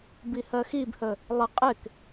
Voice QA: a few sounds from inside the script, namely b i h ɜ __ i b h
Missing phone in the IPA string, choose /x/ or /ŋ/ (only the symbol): x